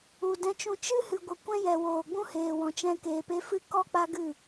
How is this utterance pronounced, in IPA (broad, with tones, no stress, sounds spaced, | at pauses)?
u˨ d ɛ̃˧ t͡ʃ ũ˧ t͡ʃ ɨ˦ h ɨ˨ ɡʷ ə˨ kʷ ɛ̃˦ j ɛ˨ w oː˨ ɡ͡b ũ˦ h eː˨ w ɔ̃˨ t͡ʃ ɛ̃˧ k eː˨ p e˧ f ɨ˦ k ɔ˦ k͡p a˦ ɡ ɨ˦˨